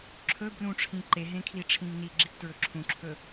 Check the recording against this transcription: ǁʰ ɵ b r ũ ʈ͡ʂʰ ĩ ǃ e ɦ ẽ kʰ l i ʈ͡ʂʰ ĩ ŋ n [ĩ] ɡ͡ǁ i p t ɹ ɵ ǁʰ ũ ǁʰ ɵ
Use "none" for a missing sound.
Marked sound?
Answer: i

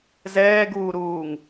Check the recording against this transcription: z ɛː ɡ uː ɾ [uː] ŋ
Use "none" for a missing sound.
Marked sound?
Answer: uː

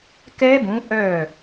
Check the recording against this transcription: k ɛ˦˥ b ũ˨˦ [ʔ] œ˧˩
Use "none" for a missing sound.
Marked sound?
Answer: ʔ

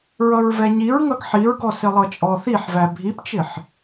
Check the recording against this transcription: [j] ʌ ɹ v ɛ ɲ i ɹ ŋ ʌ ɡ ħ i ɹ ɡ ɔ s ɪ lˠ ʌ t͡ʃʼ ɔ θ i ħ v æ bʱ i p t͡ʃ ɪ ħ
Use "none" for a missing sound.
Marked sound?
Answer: ɹ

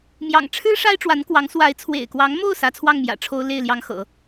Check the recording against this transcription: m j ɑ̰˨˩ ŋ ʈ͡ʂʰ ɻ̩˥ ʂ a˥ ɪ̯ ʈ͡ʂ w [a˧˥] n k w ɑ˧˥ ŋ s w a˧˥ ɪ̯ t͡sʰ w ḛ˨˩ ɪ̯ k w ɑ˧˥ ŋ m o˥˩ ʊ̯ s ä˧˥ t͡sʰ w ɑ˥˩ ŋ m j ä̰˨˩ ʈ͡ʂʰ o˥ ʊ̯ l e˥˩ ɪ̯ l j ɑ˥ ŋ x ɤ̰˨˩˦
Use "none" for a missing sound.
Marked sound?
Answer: a˧˥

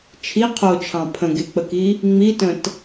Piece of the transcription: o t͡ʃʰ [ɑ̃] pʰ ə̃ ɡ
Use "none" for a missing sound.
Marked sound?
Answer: ɑ̃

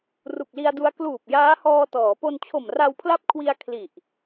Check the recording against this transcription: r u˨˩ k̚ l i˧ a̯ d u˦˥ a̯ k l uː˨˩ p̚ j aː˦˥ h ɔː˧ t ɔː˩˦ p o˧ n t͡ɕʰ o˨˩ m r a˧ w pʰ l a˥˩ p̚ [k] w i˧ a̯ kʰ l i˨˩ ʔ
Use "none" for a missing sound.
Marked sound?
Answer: kʰ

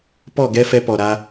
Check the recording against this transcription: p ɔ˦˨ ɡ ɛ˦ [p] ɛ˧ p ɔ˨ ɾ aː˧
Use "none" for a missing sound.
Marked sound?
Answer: f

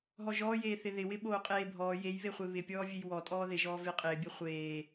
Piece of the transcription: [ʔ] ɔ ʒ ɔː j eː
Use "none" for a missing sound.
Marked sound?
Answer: ɦ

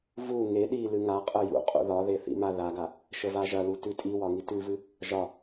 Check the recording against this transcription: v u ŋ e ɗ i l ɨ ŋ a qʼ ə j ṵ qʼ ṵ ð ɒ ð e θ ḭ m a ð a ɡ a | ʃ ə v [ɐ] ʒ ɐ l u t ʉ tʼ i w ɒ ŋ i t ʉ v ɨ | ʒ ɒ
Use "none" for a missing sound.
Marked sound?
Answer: a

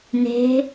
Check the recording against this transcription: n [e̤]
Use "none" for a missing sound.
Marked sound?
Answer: e̤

